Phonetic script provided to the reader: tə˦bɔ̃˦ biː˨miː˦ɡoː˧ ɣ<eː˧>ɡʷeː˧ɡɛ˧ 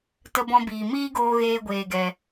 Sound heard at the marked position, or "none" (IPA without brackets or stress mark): eː˦